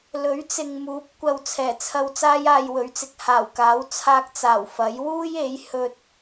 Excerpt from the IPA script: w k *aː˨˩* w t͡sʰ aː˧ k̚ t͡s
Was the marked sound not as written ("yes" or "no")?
yes